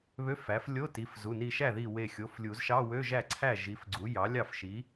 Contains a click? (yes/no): yes